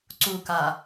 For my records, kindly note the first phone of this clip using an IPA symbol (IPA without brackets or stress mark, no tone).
ǀ